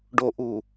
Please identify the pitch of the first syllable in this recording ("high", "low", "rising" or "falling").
low